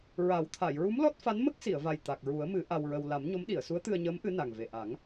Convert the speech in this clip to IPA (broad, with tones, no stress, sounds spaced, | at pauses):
ɹ a˨˩˦ w t̪ʰ a˨˩˨ j ɹ u˧˥ m l ɔ˦˥ t̚ f a˧˥ n m ə˦˥ k̚ s i˨˩˨ ə̯ v a˨˩ j t̪ a˨˩ k̚ ɹ u˨˩˦ ə̯ m ɨ˨˩˦ ʔ a˧ w ɹ ə˧ w l a˨˩˦ m ɲ o˧˥ m ɗ i˨˩˨ ə̯ s u˧˥ ə̯ t̪ ɨ˧ ə̯ ɲ əː˧˥ m ʔ ɨ˧˥ n a˨˩ ŋ v e˨˩ ʔ a˨˩˦ ŋ